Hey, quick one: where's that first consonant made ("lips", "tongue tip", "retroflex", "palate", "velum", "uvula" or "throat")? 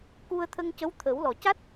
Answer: velum